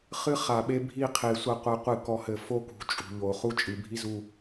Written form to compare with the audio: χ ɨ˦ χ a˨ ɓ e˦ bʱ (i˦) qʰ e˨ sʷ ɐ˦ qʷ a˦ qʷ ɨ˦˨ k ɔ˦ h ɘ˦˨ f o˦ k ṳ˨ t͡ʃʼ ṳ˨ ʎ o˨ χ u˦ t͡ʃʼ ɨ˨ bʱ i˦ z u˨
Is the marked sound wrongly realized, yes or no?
no